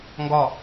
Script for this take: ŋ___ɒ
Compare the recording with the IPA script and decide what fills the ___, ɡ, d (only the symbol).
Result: ɡ